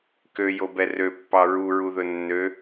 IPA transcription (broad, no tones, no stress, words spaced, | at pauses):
køjobɛ røpːɑ ɹuɹuðɵ nːø